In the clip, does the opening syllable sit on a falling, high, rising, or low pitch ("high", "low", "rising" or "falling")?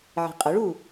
low